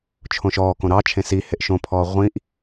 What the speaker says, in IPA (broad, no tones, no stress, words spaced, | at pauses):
t͡ʃʰõʃɔːkõ ɾɑt͡ʃʰẽ si heʔʃõpʰɔː ʁʷĩʔ